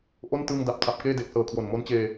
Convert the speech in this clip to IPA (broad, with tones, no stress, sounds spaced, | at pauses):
ʔ o˥˩ n t ɯː˧ ŋ d a˨˩ p̚ tʰ a˨˩ p̚ k eː˥˩ d e˨˩ k̚ s ɤː˨˩ kʰ w o˨˩ n m o˦˥ n t͡ɕ eː˧